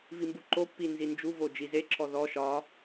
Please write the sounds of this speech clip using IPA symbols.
v i m b u ǃ o pː i n z i n d͡ʒ u v o d͡ʒ i z e ǁʰ ɔ ð ɔ ʃ ɒ

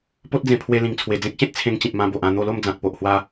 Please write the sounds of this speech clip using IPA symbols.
p o˦ t̚ d͡z ẽ˧ pʰ w e˧ l ĩ˨˩ ŋ t͡sʰ w e˨˩ d͡z ẽ˦ k̚ ɕ ẽ˦ t̚ t͡sʰ ẽ˧ ŋ t͡ɕ ĩ˨ p̚ m ã˧ b o˨ ʔ ã˥˧ n̪ o˧ l o˥˧ m d͡z ã˨ k̚ p o˨ ʔ h w a˧

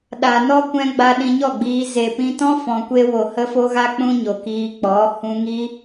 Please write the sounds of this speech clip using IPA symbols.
ɗ a˨ n ɔ˦ kʷ ɛ̃˧ ɡ͡b a˧ ɗ ĩ˧ ɲ ɔ˦˨ ɡ͡b iː˧ z e˨ p ĩ˧ t ɔ̃˦ f ɔ̃˨ kʷ e˧ w o˨ h ə˦ f o˦ ɣ a˦ k͡p ũ˦ ɲ o˨ k iː˧ k͡p ɔ˨˦ h ũ˧ ŋ i˦

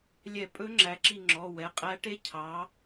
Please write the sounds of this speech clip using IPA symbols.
lʲ ɛ˧˩˧ pʼ ɵ˧˥ ŋ͡ǁ æ˩˧ ǁ i˧˩ ŋ͡ǁ ɔ˩˧˩ w ɛ˩˧˩ qʼ æ˧˥ ʈ e˧˥ cʰ ɑ˩˧

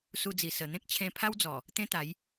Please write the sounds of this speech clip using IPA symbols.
s u˧ d͡z i˨˩ s ə˨˩ n̪ ẽ˦ k̚ t͡ɕʰ ẽ˧ pʰ a˦ w d͡z ɔ˨˩ | t̪ ẽ˦ t̪ a˨˦ j

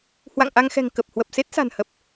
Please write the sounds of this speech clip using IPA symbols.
h w a̰˧˨ ŋ ʔ a˧ ŋ x ɛ̤˨˩ ŋ k ə˨˩ p̚ h w ə˨˩ p̚ s e˦˥ t̚ s a̤˨˩ n h ə˨˩ p̚

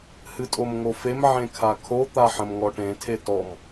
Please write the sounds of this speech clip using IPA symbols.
h ɨ tʼ o m ŋ o f e m ʕ ẽ kʰ a kʰ o t̪ a ħ ə̃ m ŋ ɔ ʈ ẽ tʰ e t ɔ m

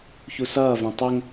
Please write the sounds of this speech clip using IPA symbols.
ç u s ʌː v ɛ̃ tˤ ɛ ŋ

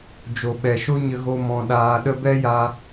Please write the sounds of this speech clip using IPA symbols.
d͡ʒ o˨ ɓ ɛ˨ ʃ o˦ ɲ ə˦ ɣ o˦ m ɔ̃˧ ɗ aː˧ ɗ ə˦ b ɛ˦ j a˧

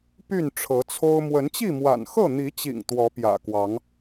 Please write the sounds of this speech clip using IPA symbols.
p y˥˨ n ʈ͡ʂʰ ɤ˨˦ t͡sʰ o˦ ʊ̯ m w ə˨˦ n t͡ɕ i˥˨ m w a̰˨˩ n x ɤ˥˨ n̪ i˨˦ t͡ɕ ḭ˨˩ ŋ t̪ w ɔ˨˦ p j ä̰˨˩ k w ɑ˨˦ ŋ

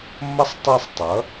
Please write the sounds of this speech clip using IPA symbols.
mː ʌ˥ sˤ tˤ i˦˨ sˤ tˤ ʌ˩˥

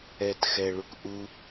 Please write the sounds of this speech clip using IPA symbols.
ɛ t x ɛ ɭ u k ʔ u

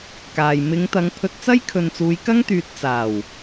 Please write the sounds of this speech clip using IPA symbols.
k aː˨ j m ɪ˨˧ ŋ t̪ ɐ˨˧ ŋ pʰ ɵ˧ t̚ t͡s ɐ˥ j kʰ ɵ˨ n t͡s uː˨˧ j k ɐ˥ ŋ t̪ yː˨˥ t̚ t͡s aː˨˩ w

